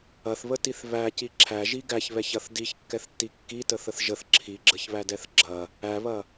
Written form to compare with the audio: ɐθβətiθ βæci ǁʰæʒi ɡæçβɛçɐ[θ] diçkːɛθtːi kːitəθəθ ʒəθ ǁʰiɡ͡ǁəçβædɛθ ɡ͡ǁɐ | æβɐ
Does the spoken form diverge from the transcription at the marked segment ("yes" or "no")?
no